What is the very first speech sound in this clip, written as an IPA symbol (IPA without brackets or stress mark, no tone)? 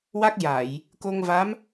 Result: w